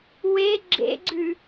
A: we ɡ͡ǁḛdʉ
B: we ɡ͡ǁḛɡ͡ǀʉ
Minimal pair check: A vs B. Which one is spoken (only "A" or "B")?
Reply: B